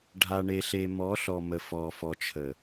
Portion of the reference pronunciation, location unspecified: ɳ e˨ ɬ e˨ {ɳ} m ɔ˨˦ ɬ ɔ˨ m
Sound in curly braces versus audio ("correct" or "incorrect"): incorrect